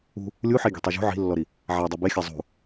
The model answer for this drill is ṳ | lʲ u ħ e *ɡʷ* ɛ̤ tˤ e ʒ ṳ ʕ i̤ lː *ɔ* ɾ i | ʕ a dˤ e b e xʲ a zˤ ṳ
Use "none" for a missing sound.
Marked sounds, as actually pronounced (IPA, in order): ɡʲ, ɔ

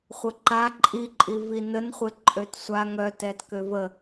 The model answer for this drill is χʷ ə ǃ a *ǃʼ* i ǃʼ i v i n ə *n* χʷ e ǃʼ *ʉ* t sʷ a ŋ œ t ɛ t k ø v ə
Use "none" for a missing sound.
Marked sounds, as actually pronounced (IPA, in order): ǃʼ, n, ø

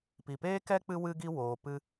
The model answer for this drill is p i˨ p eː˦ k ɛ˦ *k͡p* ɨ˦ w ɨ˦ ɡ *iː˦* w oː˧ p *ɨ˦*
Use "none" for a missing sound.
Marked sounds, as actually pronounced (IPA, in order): k͡p, i˦, ɨ˦

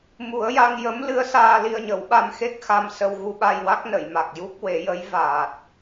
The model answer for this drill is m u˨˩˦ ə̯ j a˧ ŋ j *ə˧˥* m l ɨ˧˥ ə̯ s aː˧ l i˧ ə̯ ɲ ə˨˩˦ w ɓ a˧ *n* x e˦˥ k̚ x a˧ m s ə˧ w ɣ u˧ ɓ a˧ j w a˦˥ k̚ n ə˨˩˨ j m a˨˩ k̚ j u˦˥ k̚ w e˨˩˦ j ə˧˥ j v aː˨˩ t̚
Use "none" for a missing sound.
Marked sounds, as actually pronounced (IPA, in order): ə˧˥, m

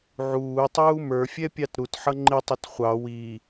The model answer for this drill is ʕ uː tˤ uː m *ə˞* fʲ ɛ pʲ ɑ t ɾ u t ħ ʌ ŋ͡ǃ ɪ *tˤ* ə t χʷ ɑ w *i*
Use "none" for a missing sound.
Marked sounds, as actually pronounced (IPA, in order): ə˞, tˤ, i

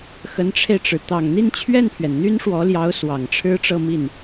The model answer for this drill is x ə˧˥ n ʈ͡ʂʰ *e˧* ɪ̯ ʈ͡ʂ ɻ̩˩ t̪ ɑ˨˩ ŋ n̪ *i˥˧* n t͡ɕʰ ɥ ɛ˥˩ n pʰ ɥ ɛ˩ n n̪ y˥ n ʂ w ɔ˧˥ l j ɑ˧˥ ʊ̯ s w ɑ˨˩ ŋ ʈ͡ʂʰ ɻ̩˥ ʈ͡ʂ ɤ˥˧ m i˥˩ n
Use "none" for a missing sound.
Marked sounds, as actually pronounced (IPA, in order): e˧, i˥˧

